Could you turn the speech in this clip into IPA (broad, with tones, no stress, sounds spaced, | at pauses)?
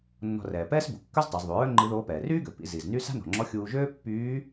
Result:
nː ɔ̤˧ r ɛː˩ p ɛː˥ s b u˩ kː œ˥ z tˤ œ˩˧ z ðˤ u˩˧ ɹ œ˥ ŋ͡ǃ i˧˥ ð oː˧˥ p ɛː˩ r yː˥ ɡ ø˩ p ḭ˧ z i˩ z n y˥ s a̤˥ n ɔ̤˩ ŋ͡ǁ ɔ˧˥ xʲ uː˧ ʒ øː˥ pː yː˧˥